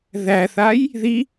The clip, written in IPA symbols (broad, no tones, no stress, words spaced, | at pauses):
ðæθaj | ði